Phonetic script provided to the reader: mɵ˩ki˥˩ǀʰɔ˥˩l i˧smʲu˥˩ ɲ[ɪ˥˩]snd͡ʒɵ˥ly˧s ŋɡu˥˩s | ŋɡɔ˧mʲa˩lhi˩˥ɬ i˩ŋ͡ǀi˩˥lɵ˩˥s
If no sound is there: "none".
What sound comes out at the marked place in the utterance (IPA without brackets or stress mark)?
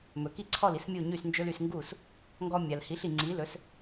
y˥˩